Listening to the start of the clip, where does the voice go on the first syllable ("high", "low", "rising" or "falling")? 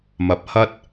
rising